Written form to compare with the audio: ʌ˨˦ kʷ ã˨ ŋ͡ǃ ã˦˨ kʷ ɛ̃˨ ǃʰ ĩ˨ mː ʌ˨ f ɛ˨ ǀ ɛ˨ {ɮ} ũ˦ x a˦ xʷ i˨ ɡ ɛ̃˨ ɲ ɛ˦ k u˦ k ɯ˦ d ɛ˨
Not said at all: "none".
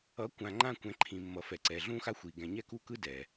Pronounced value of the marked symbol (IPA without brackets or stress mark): ɮ